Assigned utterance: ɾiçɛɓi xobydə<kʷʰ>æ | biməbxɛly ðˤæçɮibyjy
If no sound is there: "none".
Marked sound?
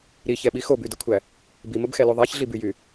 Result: kʷʰ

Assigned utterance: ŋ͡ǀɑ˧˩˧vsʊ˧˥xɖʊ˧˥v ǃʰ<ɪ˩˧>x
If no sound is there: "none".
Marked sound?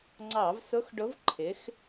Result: ɪ˩˧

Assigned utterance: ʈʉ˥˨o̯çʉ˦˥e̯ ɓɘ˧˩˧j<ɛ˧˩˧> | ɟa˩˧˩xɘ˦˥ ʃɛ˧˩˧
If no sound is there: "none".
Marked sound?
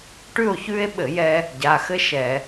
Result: ɛ˧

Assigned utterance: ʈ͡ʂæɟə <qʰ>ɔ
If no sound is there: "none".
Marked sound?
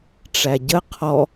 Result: qʰ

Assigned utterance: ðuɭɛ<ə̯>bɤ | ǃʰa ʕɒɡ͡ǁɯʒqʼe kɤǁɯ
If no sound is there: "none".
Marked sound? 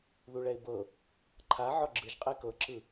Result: ɪ̯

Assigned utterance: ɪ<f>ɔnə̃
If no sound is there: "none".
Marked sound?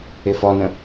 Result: f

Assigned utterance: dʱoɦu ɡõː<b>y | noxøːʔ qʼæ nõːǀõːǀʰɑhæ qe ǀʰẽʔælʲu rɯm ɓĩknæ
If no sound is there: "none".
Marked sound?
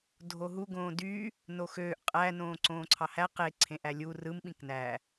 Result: d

